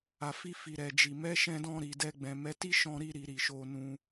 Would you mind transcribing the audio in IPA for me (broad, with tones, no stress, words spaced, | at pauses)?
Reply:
a˨fi˧ fi˨ɾɛ˨d͡ʒi˨ mɛ˨˦ ʃɛ̃˧dɔ̃˧ ɾi˨dɛ˧ɡ͡bɛ̃˨ mɛ˨˦ti˦ʃɔ̃˧ ɾi˧ɾi˨ ɾi˨ʃo˧nũ˧